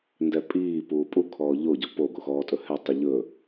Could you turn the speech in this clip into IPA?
n d ɛ pʼ iː p uː pʼ u kʰ ɔː ʎ o ɟ ɔ p o ɡ o x ɔː tʼ ɵ h ɛ tˤ i ʎ ɵ

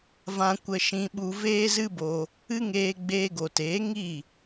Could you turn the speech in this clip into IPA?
v ã˧ kʷ ə˧ ʃ ĩ˧ ɓ u˧ v eː˦ z ɨ˦ b o˧ | ɨ˦ ŋ eː˧ ɡ͡b eː˧ ɡ o˨ t eː˨˦ ŋ i˦˨

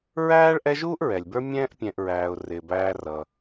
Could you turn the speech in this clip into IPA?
ɹ æː˥ ɭ ʔ ɛ˦ ʒ uː˥ ʔ ɹ ɛ˩ lʲ b ə˞˦ mʲ ɛ̃ː˥ ʔ pʲ ɛ̃˨ ʔ ɹ æː˩ ʊ̯ r ɪː˩ b æː˨ r ʌ˩

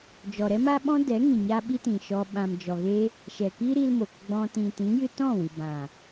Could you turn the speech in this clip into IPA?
d͡ʒ ɔ˨ ɾ ɛ˦ m a˦ ɓ ɔ̃˦ d ɛ˨˦ ŋ ĩ˨ ɲ a˦ ɓ i˦ t ĩ˨ ʃ ɔ˧ ɓ ã˨ m d͡ʒ ɔ˨ ɣ e˦ | ʃ ɛ˨ k iː˦ ɾ i˦ l m o˨ k ɡ͡b ɔ̃˧ t ĩ˨ t ĩ˨˦ j ɨ˧ t ɔ̃˦˨ w ɨ˨ b ã˨

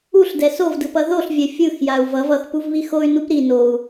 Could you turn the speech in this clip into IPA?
u ɬ d ɛ s o v d ɯ p ʌ ð o ɬ vʲ ɛ fʲ ɯ x j a u̯ v ʌ v ʌ x p u v β i x o y̯ n u p ɾ i n o u̯

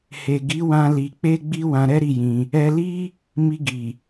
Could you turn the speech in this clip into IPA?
h e˨ ɡ i˨˦ w ã˧ l i˨ k͡p e˧ ɡ͡b i˧ w ã˧ ɾ ɛ˦ ɾ i˦˨ j ĩ˧ | ɛ˧ l i˦ | m i˧ ɡ i˨

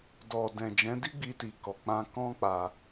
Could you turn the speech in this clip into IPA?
d ɔ˨ d ɛ̃˨ d͡ʒ ɛ̃˨˦ d i˦ ɡ͡b i˧ t i˨ k ɔ˨ k͡p ã˧ k ɔ̃˦ k͡p a˧

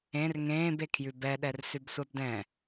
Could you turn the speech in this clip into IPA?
ẽ r ŋ ẽː b e kʰ j ʉ b ɛ ɗ ɛ r s ʉ b sʷ a b d ɛ̃

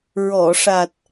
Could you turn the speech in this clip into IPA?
ɹ ɔ˨˩˨ ʂ a˨˩ t̚

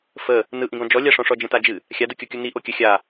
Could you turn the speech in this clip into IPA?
f ə | n ɯ ʔ ĩ ɡ ɔ̃ d͡ʒ ɔ lʲ a ʂ ɔ̃ ʂ ɔ d͡ʒ ə̃ t a d͡ʒ ɨ | xʲ a d ɯ kʲ o kʲ u n i ʔ o kʲ ə xʲ a

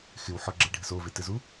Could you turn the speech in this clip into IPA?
x ɪ w ħ ɔ ɡ͡ǁ e ɖʱ ɪ s o v e t ɪ z u

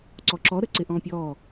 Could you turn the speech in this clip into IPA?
ǀ ɔ ǁ ɔ ɾ ə ǀ ɪ ʔ ɔ̃ pʲ ɔ

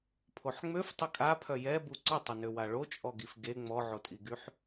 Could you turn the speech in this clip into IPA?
pʰ o ħ ŋ͡m ø f tˤ ə kʼ a pʰ œ j ɛ b u ǀ ə tˤ ə n ø w a ɭ o t͡ʃʼ ɔ ɡ i f ɡ e ŋ͡m ɔ ʕ o tʼ i ɡ y ħ

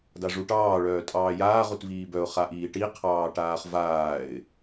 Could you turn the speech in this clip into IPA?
d a ʐ u ʈ ɑː ɭ œː tʼ ɑː j aː ʁ u t v iː b œ ʊ̯ χ a ʔ iː ʈ i qʰ ɑː ʈ aː χ v aː ɪ̯

